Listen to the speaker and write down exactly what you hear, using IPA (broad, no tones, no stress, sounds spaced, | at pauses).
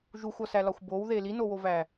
ʒ u xʷ ɒ s æ l ɒ xʷ b o w ð e l i n o w o v æ